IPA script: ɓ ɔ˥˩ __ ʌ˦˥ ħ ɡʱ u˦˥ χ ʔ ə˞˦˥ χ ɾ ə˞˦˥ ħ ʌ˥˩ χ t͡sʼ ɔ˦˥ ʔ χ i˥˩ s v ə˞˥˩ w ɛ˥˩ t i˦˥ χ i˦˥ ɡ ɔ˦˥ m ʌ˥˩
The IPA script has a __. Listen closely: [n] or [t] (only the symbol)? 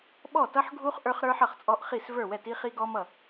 t